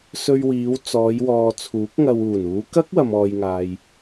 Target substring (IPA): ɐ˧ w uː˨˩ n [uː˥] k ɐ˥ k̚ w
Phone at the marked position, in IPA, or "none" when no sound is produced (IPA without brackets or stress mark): uː˨˧